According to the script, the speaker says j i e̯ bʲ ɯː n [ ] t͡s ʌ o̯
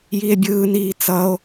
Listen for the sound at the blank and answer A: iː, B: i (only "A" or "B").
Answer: A